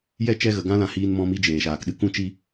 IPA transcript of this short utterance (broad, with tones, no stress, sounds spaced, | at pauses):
j ɛ˦ t͡ʃ ɛ˧ ɣ ə˨ ɡ ã˦ l ã˧ h iː˧ n m ɔ̃˧ m i˧ d͡ʒ eː˨ ʃ aː˨ k ɗ ɨ˦ k ũ˧ t͡ʃ i˧